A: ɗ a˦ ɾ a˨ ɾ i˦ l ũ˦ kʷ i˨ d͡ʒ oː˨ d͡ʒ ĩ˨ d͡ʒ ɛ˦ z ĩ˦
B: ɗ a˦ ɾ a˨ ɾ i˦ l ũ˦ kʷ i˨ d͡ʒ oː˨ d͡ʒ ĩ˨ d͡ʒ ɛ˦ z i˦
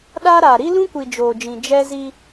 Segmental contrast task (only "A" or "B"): B